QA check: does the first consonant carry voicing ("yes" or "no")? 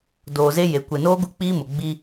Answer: yes